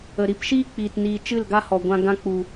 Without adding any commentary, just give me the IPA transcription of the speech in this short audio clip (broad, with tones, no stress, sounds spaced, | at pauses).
ə˨ ɾ i˧ p ʃ iː˦ k͡p iː˨ t n iː˨ t͡ʃ ɨ˦˨ l ɡ a˦ h ɔ˨ ɡʷ ã˧ ɡ ã˧ k͡p u˨